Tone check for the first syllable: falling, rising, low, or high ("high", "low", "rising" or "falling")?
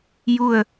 falling